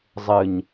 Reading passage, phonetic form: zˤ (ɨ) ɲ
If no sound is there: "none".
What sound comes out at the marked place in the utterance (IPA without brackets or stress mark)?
ɨ